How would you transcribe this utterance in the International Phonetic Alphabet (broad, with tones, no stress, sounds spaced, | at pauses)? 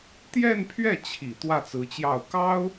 t̪ j ɛ˥˧ n pʰ ɥ ɛ˥˩ t͡ɕʰ i˨˩ t̪ w ä˥˩ t͡s ɹ̩˧˥ t͡ɕ j ɑ˥˩ ʊ̯ k ɑ˥ ʊ̯